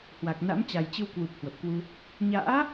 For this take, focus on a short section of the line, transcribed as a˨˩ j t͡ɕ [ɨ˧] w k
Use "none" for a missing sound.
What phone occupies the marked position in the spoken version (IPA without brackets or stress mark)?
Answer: ɨ˧